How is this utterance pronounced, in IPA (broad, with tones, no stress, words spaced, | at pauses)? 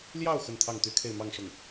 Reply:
ljɑ˥˧ʊ̯ xə˥˧nt̪ʰɑ˥˩ŋt̪y˥kʰe˥˧ɪ̯ mɑ˥˧ŋʂʊ˥˩ŋ